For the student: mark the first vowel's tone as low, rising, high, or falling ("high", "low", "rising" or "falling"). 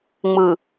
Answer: low